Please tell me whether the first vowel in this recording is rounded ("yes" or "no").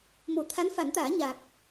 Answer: yes